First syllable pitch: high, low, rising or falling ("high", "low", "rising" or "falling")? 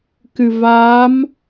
low